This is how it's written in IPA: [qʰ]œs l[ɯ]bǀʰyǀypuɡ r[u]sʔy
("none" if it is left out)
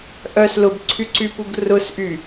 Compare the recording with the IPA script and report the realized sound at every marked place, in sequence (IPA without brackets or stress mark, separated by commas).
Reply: ʔ, ʊ, ʊ